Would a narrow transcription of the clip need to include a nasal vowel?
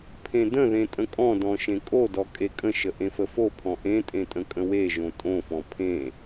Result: yes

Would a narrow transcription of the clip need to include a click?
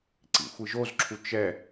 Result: yes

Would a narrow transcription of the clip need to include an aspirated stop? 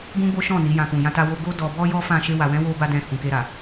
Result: no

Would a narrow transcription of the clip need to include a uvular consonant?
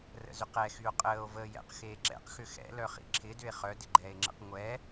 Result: yes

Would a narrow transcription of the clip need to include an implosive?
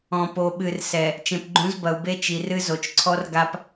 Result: yes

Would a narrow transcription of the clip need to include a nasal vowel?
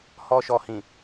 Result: yes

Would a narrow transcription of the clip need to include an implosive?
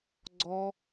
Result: no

